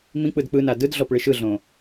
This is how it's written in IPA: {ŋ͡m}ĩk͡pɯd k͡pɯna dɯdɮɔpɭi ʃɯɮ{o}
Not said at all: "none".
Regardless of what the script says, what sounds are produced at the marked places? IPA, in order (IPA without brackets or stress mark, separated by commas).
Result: m, õ